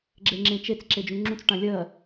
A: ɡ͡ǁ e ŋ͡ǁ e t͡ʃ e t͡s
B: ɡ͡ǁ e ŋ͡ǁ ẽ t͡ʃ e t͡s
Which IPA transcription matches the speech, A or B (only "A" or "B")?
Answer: B